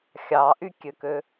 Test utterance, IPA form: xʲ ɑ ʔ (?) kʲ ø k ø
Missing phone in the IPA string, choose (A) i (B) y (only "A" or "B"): B